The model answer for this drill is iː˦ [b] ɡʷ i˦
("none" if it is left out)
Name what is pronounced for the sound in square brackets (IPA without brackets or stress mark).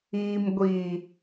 m